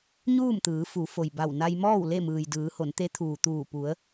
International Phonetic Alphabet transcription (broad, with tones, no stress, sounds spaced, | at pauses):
ɲ uː˥˨ m t̪ ɯː˩˧ f u˩˧ f o˩ j b a˧˩ w n a˧ j m ɔː˥˨ w l e˥˨ m ɯː˩ j d ɯː˩˧ h o˩˧ n t̪ e˧˥ t̪ʰ uː˩ t̪ uː˧˩ p u˩˧ ə̯